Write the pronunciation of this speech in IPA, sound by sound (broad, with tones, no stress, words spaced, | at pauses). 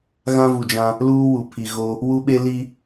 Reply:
ɣã˦vu˨d͡ʒã˦ | luː˦wu˨ pʰi˨ ɣo˦ | wu˦ɓe˦ li˦